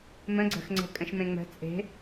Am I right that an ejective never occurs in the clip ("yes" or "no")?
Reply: no